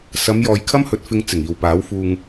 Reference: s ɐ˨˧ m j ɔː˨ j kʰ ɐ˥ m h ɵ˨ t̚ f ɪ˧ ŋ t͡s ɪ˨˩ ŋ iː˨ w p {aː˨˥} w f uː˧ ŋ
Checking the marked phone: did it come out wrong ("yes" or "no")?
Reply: no